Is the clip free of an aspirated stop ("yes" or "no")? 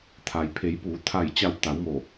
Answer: no